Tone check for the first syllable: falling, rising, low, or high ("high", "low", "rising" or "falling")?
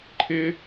high